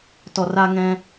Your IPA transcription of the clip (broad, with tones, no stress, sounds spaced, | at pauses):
t ɔ˨ r a˧ ŋ ɛ̃˧